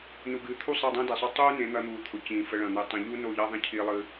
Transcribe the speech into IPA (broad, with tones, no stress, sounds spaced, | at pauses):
n u˨ ɡ ɨː˨ t̪ʰ u˦˨ sˤ e˦˨ dˤ ĩː˦ d i˨ sˤ o˦ tˤ uː˦ n ẽ˨˦ n̪ ɐ˧ n̪ uː˨ t̪ʰ ʊ˨ c ĩː˨ f ə˧ ɭ ɐ̃˨ n̪ ɨː˨ tˤ ɐ̃˧ ʎ u˦ n o˦˨ ʎ ɐ˦ ðˤ ẽ˦ cʰ i˦ lˠ ɨː˦